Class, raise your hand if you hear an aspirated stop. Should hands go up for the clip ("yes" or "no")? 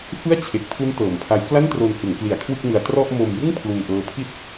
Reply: yes